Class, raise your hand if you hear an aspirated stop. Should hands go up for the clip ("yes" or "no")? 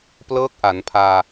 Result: yes